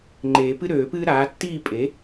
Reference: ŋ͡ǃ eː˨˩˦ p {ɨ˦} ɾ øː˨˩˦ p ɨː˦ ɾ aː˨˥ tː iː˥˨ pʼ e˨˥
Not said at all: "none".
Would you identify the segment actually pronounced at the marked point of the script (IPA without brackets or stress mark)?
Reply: ɨ˦